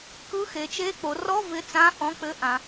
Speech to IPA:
k ɯ˧˥˧ x e˩˧ t͡ʃ e˧˥˧ k͡p o˩˧ r ɔ˧˥˧ v ɪ˧˥˧ t͡s ã˧˥˧ ʔ ɔ̃˧˥˧ k͡p ɘ˧˥˧ ʔ ã˩˧

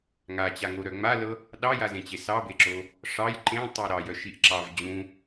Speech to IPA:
ŋ a t͡ɕ a ŋ o ɾ œ ŋ͡m a l ɤ | ɗ ɑ j a z ẽ t͡ɕ e s ɑ b e ǁ o | ʂ ɑ j ǃ ẽ tˤ œ ɾ ɑ j œ ʃ i ʔ ǁ ɑ v d͡ʑ ũ

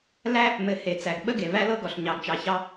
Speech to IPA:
l æ˦ | m ɘ˨ h e˨ t͡s æ˨ ɡ ɓ ə˦ ɡ e˨ v æ˦ l ɤ˦ ɡ ɔ˨ ɬ ɲ ɑ˨ ɡ t͡ʃ ɑ˨ ç ɑ˦

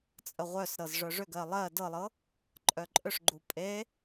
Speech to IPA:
t͡sʼ ə ʁʷ œ s ɾ ɤ z ʐ œ ʐ ʏ ɡ ɜ lˠ ɜ d ɤ lˠ ɤ | ǃʼ œ ǃʼ ʏ ʂ ɡ͡ǃ u pʼ e

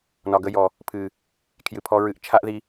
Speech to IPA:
n ɒ˨ ɡ ə˧ j ɔ˨ | pʰ ɨ˨ | kʰ j ɨ˨ pʰ ɔ˧ ɹ ɨ˧ ʔ t͡ʃʰ a˦ ʔ ð i˧

